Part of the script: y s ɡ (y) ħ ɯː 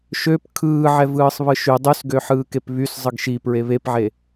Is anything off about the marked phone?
yes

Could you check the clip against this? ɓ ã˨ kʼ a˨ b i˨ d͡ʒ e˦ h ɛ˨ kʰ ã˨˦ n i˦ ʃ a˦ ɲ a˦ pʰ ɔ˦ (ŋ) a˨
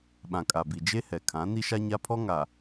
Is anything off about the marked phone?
no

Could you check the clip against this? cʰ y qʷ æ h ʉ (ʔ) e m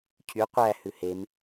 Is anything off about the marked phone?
yes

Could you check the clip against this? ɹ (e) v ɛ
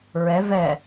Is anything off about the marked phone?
yes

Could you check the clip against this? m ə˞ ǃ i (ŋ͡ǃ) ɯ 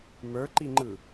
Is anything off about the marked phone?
no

